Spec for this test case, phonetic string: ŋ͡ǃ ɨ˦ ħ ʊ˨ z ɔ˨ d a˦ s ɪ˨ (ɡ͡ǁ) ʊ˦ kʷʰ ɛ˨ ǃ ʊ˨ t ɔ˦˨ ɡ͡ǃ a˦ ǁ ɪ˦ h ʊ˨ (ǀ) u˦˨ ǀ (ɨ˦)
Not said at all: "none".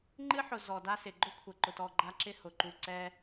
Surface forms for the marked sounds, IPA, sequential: ɡ͡ǃ, ǃ, ɛ˦

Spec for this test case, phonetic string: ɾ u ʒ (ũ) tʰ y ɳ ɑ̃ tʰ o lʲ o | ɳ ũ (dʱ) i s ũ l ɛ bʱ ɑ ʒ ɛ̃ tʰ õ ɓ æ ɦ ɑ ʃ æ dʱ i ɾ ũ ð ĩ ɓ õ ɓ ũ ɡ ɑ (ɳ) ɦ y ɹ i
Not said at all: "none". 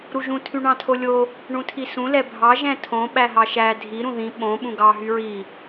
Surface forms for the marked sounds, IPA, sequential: ũ, tʰ, none

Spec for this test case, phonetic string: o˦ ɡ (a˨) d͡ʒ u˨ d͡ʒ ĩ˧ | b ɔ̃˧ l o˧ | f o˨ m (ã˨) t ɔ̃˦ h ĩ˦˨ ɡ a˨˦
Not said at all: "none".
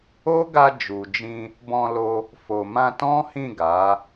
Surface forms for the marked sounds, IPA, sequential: a˧, ã˧

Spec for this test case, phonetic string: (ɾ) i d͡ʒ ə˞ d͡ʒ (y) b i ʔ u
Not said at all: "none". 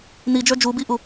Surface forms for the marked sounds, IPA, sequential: n, u

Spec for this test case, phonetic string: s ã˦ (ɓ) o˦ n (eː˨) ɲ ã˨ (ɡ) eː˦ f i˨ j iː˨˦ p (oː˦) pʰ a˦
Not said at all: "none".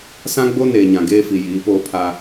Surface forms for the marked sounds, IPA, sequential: ɡ͡b, eː˨, ɡ, oː˦

